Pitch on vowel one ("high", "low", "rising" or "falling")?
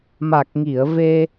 low